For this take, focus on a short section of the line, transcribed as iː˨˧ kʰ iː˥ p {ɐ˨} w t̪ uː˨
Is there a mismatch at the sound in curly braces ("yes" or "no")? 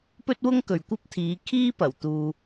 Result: yes